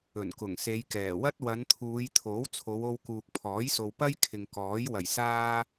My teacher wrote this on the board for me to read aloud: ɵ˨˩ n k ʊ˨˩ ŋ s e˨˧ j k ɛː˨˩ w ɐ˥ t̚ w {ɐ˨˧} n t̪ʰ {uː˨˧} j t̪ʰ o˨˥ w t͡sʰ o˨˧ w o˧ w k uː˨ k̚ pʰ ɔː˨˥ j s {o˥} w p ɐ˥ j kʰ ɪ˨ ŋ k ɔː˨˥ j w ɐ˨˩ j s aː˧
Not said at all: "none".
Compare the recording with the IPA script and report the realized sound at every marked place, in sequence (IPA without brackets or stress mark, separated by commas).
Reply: ɐ˨˧, uː˨˧, o˨